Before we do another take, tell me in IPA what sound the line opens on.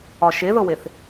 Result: ɒ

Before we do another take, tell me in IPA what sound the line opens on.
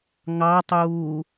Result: ŋ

